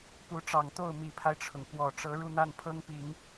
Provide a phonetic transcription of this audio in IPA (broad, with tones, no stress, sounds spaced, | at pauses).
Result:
p u˧˥ ʈ͡ʂ ɑ˨˩ ŋ t̪ o˥˩ ʊ̯ m i˨˩ pʰ a˦ ɪ̯ ʈ͡ʂʰ ʊ˩ ŋ k w ɔ˨˩ ʈ͡ʂ ɤ˧˥ ɻ u˥˧ n̪ a˥˩ n pʰ ɤ˥ ŋ p i˨˩˦ ŋ